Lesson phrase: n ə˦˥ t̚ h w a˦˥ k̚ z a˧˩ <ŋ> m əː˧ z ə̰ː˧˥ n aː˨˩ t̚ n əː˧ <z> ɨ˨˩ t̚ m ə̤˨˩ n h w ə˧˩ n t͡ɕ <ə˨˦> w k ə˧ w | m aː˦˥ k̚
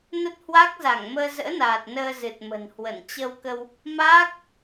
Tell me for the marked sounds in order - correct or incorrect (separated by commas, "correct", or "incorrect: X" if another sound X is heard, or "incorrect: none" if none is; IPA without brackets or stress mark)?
correct, correct, incorrect: ə˧